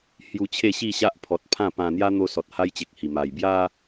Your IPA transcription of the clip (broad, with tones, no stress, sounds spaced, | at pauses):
h j u˧ t͡ɕʰ e˥˧ ɕ i˥˧ ɕ a˦ ʔ pʰ ɔ˨ t̚ pʰ ã˥˧ p ã˧ n̪ j a˦ n̪ o˧ s ɔ˨ t̚ h a˦ j t͡ɕ e˨ k̚ h i˨˩ m a˨˩ j b j a˦